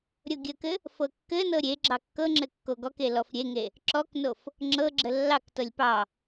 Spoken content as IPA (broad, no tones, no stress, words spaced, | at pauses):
ɾʲoɡʲəkɘ | fɤkːɘnɤ ɾʲe ɡ͡ǁɑkːɤŋ͡ǁɘ kːoɡɔke lɔfɾʲeŋe | ǁɔknof | ŋ͡ǁɤɡ͡ǁə lːɑktɤlʲ pɑ